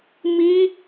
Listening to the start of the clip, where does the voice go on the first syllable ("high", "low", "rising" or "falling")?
high